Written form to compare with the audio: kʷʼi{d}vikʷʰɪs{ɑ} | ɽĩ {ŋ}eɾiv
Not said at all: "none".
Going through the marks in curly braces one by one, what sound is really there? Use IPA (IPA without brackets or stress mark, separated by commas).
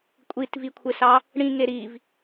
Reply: t, ɑ, ŋ